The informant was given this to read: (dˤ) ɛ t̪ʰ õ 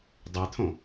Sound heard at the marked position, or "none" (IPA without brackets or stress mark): dˤ